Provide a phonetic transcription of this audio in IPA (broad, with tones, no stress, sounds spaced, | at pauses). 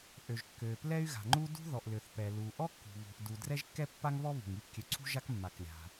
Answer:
ʔ ø˩ ʒ kː ø˩ p l ɛ˥ y̯ ɣ a̤˩ ŋ͡ǃ u˥ d ṳ˥ ð ɔ˩ ʔ l ø˩ θ p ɛ˩ l u˩ ʔ ɔ˥ kː ṳ˩ β ṳ˩ ʔ d u˩ d r ɛ˥ ʒ kː ɛ˥ pː a˥ ŋ β ɔ˥ β ṳ˩ ŋ i˥ p kʲ ø˩ ǀʰ ṳ˥ ʒ a˥ k mː a˩ k lʲ a̤˩